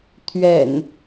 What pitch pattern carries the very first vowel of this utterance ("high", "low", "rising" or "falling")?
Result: low